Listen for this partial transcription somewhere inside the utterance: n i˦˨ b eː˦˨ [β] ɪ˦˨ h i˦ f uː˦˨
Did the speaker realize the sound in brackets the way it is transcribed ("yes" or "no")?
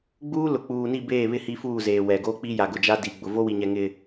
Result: yes